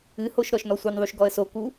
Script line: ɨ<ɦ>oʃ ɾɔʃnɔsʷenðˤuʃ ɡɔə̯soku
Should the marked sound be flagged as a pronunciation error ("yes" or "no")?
yes